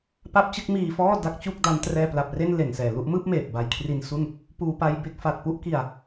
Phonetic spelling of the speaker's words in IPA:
p a˦˥ p̚ t͡ɕ ɯ˦˥ k̚ m iː˧ f ɔː˥˩ d a˦˥ k̚ t͡ɕ u˥˩ k̚ d a˦˥ n t r ɛː˧ p l a˨˩ p̚ r e˥˩ n l e˨˩ n s ɛː˨˩ l u˥˩ ʔ m ɯː˥˩ p̚ m eː˨˩ p̚ b a˨˩ j kʰ r i˧ n s u˥˩ n | p uː˧ p a˧ j b e˥˩ k̚ f a˨˩ t̚ p u˥˩ ʔ k i˧ a̯

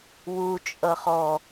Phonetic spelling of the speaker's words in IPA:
w u t͡ʃʼ ʌ χ ɔ

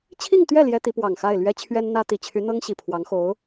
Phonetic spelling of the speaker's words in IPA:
t͡ɕʰ i˥˧ ŋ t̪ ɥ ɛ˥˩ l j ɛ˥ t̪ i˧˥ p w ɑ˨˩ ŋ x a˥˩ ɪ̯ l ɥ ɛ˥ t͡ɕʰ ɥ ɛ˥ n n̪ ä˥ t̪ i˨˩ t͡ɕʰ y˧˥ n̪ ɤ˥ ŋ ɕ i˨˩ pʰ w ɑ˧˥ ŋ x o˧˥ ʊ̯

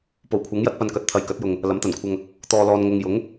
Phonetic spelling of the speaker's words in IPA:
p o˨˩ w kʷʰ ɐ˨˥ ŋ j ɐ˥ t̚ p ɐ˧ n k ɐ˨˥ t̚ t̪ʰ ɐ˨˧ j k ɐ˨˥ t̚ j ʊ˨ ŋ | l ɐ˨˥ m t̪ ɐ˨˩ n kʷʰ ɐ˧ ŋ | t̪ ɔː˨ l ɔː˨ n ŋ ʊ˨ ŋ j ʊ˨˥ ŋ

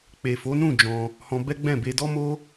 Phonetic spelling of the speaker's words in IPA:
k͡p e˨ f o˨˦ n ũ˦˨ d͡ʒ ɔ̃˧ | h ɔ̃˧ b ɛ˦ ɡ͡b ɛ̃˦˨ b e˧ d ɔ˦ m o˦

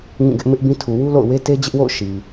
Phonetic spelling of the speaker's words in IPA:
ŋ ĩ˦˨ ɡ ɪ˦ ʔ m ɪ˦ ʔ b ĩ˦ tʰ u˨ w u˦ l o̰˦˨ ʊ̯ w e˦ t e˦ d͡ʑ ɪ˦ ʔ w o̰˦˨ ʊ̯ ʃ i˨

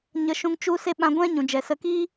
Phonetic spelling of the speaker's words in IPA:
ɲ ə˧ ʃ ũ˧ ŋ t͡ʃ u˦ s e˦ ɓ ã˧ ɡʷ ɛ̃˦ ɲ ũ˨ d͡ʒ ɛ˨ s ə˧ k iː˦

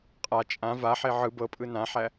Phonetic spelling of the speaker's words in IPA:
qʼ a t͡ʃʼ ã v a ħ e ʕ ɯ b ɤ pʼ ɯ n ã ħ æ

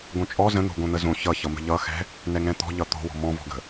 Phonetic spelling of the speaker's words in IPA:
ɡ õ t͡ʃʼ ɔ z ə̃ n̪ o̤ ɡ õ n̪ ə z õ ç ʌ ç ʌ m ə̤ ʎ ʌ x ɛ̤ | n ɛ ŋ ɛ̃ t̪ ɔ̤ ʎ ʌ t̪ o̤ w ɔ̤ m ɔ̃ v ɔ̤ ɡ ə̤

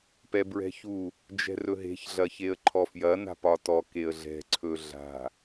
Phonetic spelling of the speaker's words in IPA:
p ɛ b ɹ ɛ̤ ç u | d͡ʒ ɛ̤ r ɵ ɦ e̤ ç ɮ ɐ ç e ə̯ ǃʰ ɔ f j ɐ n a̤ p ɒ t ɔ k e ə̯ ɮ ɛ̤ ǀʰ ɵ ɮ a̤

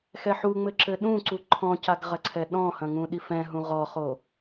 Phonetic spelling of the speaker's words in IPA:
x ɛ ħ u ŋ͡m ɘ ǁ ɘ ɗ ũ ǀ u ǃʰ ɔ̃ c a ɡ ʁ ɐ ǀʰ ɛ ɗ ɔ̃ h ɐ̃ ŋ ũ ɗ i f ɛ̃ ɦ ũ ʁ ɔ χ o

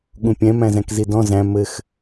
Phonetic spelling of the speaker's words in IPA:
ɠ ũ pʲ ɛ̃ m æ̃ z æ̃ k z i d ɔ̃ z æ̃ m ɘ x

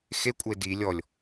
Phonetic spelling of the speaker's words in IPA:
x e kʷʼ ə e̯ d i lʲ ɔ lʲ

